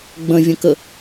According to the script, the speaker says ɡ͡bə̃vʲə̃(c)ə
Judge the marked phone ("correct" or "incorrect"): incorrect